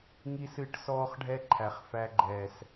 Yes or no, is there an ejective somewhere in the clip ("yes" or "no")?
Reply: no